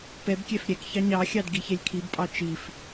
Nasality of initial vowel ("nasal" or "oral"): oral